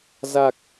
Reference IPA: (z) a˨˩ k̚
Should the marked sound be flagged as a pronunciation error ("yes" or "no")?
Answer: no